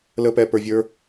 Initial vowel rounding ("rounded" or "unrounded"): unrounded